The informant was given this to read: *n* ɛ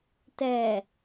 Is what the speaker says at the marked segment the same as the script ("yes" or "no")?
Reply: no